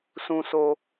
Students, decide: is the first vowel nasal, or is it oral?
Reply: nasal